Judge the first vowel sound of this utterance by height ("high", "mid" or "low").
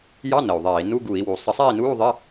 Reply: low